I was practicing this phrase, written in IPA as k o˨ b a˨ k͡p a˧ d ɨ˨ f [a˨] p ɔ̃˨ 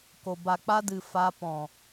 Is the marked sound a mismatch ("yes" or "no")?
yes